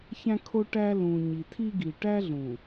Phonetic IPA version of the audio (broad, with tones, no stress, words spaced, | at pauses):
çæ̃˦kʰo˦ʈæ˦ lũ˨ɲi˨tʰi˦ ɡi˨ʈæ˦ɮũ˨